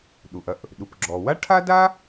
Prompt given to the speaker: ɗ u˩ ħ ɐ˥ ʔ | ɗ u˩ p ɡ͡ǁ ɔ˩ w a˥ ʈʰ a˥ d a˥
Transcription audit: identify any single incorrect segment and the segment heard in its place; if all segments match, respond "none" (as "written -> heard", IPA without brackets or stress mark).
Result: ħ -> ʔ